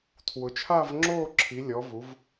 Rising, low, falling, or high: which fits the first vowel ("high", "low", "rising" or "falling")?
rising